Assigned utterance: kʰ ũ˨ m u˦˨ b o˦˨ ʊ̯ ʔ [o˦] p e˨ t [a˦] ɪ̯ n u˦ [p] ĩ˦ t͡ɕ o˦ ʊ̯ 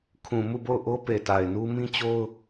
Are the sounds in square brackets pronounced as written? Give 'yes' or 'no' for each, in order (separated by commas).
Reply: yes, no, no